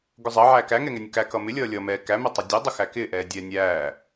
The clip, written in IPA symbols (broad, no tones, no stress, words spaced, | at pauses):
ɡʊzˤə ʕæːkæŋɛŋɛ nʲʊkæ kʌmɪlʲʌː lʲʌmɛː kæmɛtˤʊ dʲɛdˤʊ xækɪːʔɛː dʲɛːnʲæː